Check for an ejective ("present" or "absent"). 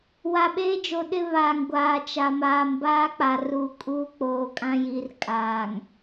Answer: present